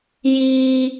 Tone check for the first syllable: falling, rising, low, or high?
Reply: high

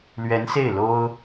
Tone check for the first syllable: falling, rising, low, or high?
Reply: rising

